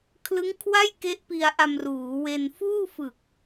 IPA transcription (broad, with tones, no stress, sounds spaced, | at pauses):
kʰ l ɯ˦˥ ŋ kʰ w a˥˩ j k e˦˥ ʔ p i˧ a̯ ʔ a˧ m r uː˩˦ w e˧ n f uː˥˩ f ɯ˨˩ k̚